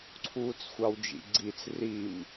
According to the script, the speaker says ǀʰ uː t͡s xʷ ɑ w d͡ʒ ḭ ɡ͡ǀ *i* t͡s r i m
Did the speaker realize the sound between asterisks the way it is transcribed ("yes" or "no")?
yes